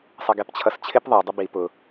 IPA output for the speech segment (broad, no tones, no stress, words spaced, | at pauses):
sˤʌɡɛpt͡ɕʰʌst͡ɕʰɪp ðˤə˞ dˤəbi pʊ